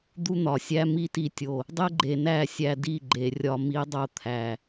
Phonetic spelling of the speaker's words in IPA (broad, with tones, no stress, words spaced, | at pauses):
d̪u˦n̪ɒ˨sʲæ˦ mi˦ti˧tʲo˨ | dˤe˦ ɡ͡ǃe˨næ˦˨ sʲæ˧di˦˨ɡ͡ǃe˨rʲɒ˧ mi˧dˤo˧ t̪ʰæ˨